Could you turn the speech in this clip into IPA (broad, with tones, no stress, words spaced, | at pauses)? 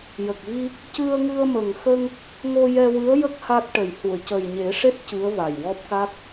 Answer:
jə˨˩k̚vi˧ | cɨ˧ə̯ŋɨ˧ə̯mə˨˩ŋxə˧ŋ | ŋo˧jɛ˧wɨ˧˥ə̯ jə˦˥k̚ ha˦˥t̚ʈə˨˩j hu˨˩˨ə̯cə˨˩jɲe˨˩˦ʂe˦˥t̚ cɨ˧˥ə̯va˨˩jwɔ˦˥p̚ka˦˥k̚